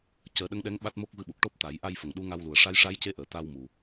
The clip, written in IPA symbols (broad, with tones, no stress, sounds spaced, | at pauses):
c əː˨˩˦ ɗ ə˧˥ ŋ ɗ ɛ˧˥ ŋ ɓ a˦˥ t̚ m o˦˥ k̚ v ɨ˧ ɓ u˨˩ k̚ ʈ o˦˥ p̚ t̪ a˨˩˦ j ʔ a˧ j f ə˨˩˨ ŋ ɗ u˧˥ ŋ a˧ w l u˨˩ ə̯ ʂ a˧˥ j ʂ a˧˥ j c e˧˥ ʔ əː˨˩˨ t̪ a˧ w m u˨˩